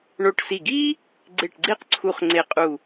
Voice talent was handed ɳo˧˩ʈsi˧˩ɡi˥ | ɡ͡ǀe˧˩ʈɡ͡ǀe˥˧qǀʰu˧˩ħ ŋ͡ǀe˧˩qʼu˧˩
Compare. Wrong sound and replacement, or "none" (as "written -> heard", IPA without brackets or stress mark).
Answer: ħ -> χ